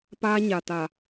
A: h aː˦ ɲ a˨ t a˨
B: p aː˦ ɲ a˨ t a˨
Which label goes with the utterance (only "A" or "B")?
B